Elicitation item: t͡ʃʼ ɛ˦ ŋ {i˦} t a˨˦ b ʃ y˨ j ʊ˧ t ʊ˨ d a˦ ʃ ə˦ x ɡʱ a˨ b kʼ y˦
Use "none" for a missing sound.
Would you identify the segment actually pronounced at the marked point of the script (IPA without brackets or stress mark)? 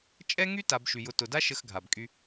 y˦